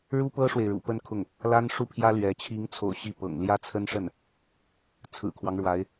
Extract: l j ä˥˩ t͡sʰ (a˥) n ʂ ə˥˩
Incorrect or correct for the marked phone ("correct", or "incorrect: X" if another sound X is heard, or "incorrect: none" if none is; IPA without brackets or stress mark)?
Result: incorrect: ə˥